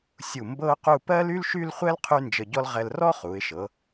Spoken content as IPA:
sʲ u˧˩ m b ɤ˥ ʊ̯ q u˥˧ p ɜ˥ l y˥ l ʃ y˥˧ l χʷ ɛ˥ l qʰ y˥ n d͡ʒ ə˧ ɟ ɔ˥ l ʁ ɛ˧ l r ɔ˥ χ u˩˧ ɪ̯ ʃ ɤ˩˧

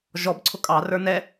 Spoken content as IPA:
ʒ ɔ b ǀʰ ʊ kʼ ɑ r ə˞ n ɛ

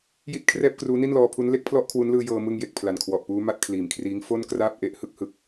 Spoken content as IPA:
j i˦˥ t̚ kʰ r ɛː˥˩ p̚ k r uː˦˥ n i˥˩ n l ɔː˧ pʰ u˦˥ n l e˦˥ k̚ pʰ l ɔ˦˥ ʔ kʰ w u˦˥ n l ɯː˧ j ɤː˧ m ɯ˧ ŋ j e˨˩ k̚ pʰ l a˨˩ n kʰ w ɔ˨˩ ʔ p uː˦˥ m a˥˩ t̚ kʰ l iː˨˩ m kʰ r iː˦˥ ŋ f o˥˩ n k r aː˥˩ p̚ ʔ e˦˥ ʔ h ɯ˥˩ k̚ h ɯ˦˥ k̚

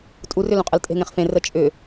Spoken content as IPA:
tʼ u r ʏ l ũ qʼ ə l tʼ e̤ ŋ ẽ χ f ẽ r ə t͡ʃʼ ʏ

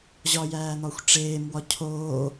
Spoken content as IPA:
ʑ ɒ j æː n̪ ɒ xʷ ʈ͡ʂ eː m w ɒ cʰ oː

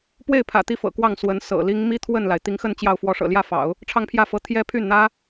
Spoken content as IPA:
p w e˥˩ ɪ̯ pʰ ä̰˨˩ t̪ i˧˥ f ɤ̰˨˩ k w ɑ˥˩ ŋ s w ə˧˥ n s ɤ̰˨˩ l i˥ ŋ m i˥ t̪ʰ w ə˥˩ n l a˩ ɪ̯ t̪ i˧˥ ŋ x ə˥˧ n t͡ɕ j ɑ˥˩ ʊ̯ f w ɔ˧˥ ʂ ɤ̰˨˩ l j ä˥˩ f ɑ̰˨˩˦ ʊ̯ | ʈ͡ʂʰ ɑ˥˧ ŋ pʰ j ä˥˩ f ɤ˧˥ t̪ʰ j ɛ˥ pʰ y˥˩ n n̪ ä˥

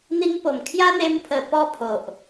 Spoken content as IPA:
n̪ i˧ ŋ p o˨˩ m kʰ j a˦ n̪ e˧ m pʰ ə˨˩ p ɔ˦ pʰ o˨ ʔ

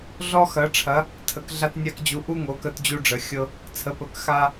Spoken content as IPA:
ɮ ɔ˧ x ɐ˩˧ ʈ͡ʂʰ ɐ˩˧ | tʰ ə˩˧ k ɮ a˧ t nʲ a˧ k d͡ʑ u˩˧ ʔ u˧ ŋ o˩˧ k ə˧ t d͡ʑ u˧ ɖ͡ʐ ə˩˧ xʲ ɤ˧ | t͡sʰ ə˩˧ p ə˩˧ k x a˧

